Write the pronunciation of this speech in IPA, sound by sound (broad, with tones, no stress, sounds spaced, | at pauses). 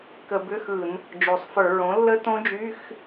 k ə˧˩˧ b ʏ˧˥˧ x ɯ˧˩˧ n | d͡ʒ o˩˧ sˤ f ə˞˧˩˧ ɹ õ˩˥ lː ə˦˥ t õ˦˥ d͡ʒ y˧˥˧ x